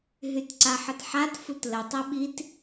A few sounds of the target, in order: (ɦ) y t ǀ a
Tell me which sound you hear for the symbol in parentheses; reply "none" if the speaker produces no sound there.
ɦ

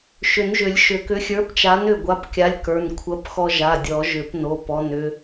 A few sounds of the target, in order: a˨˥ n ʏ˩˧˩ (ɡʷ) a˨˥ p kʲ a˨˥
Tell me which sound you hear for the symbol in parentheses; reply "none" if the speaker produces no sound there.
ɡʷ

